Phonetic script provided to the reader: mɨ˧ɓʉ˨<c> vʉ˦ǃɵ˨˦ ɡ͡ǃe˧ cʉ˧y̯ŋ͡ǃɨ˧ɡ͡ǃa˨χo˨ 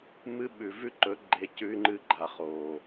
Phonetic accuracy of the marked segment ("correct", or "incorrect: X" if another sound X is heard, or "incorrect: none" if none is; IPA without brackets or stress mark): incorrect: none